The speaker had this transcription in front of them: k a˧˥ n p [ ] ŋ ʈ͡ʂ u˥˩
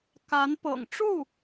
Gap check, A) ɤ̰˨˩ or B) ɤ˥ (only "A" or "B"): A